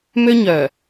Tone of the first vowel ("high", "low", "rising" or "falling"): high